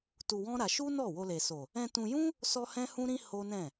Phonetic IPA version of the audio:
t u˧ w ɔ̃˦ ɾ a˧ ʃ u˦ n ɔ˦˨ w o˧ l e˨ s o˨ | ɛ̃˧ t ũ˧ j ũ˦ | s ɔ˦ h ɛ̃˦ h ũ˦ ɾ ĩ˦ h o˦ n ɛ̃˦˨

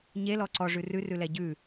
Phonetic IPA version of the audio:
ɲ e l ɔ ǀ ɔ ʐ ʉ r ʉ r ʉ l ɛ ɟ ʉ

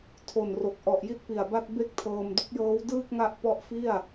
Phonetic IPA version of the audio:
tʰ o˨˩ n r o˨˩ k̚ ʔ ɔ˨˩ ʔ j i˦˥ t̚ p i˨˩ a̯ b a˥˩ t̚ b e˥˩ k̚ tʰ ɤː˧ m d u˦˥ k̚ j ɤː˦˥ w d ɯː˥˩ k̚ ŋ a˦˥ ʔ p ɔ˥˩ ʔ f i˥˩ a̯

